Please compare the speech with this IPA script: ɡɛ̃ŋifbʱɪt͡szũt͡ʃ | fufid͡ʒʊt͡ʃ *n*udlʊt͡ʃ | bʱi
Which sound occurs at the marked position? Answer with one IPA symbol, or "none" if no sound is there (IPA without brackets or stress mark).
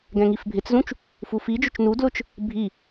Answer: n